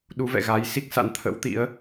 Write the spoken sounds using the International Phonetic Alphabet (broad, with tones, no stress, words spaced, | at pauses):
ɗu˨˦vɛ̰˧˨ɣa˨˦jsi˦˥k̚ sa̰˧˥nt̪ʰə̰˧˥wt̪ḭ˧˥ə̯